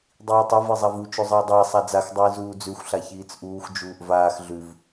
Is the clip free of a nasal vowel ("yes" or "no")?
yes